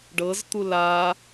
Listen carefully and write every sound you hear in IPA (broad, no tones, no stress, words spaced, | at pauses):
ɖɤzt̪u la